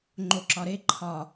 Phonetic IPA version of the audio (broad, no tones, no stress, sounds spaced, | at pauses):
ŋ͡ǃ o ǁ ɒ ɾ e ǃʰ ɒ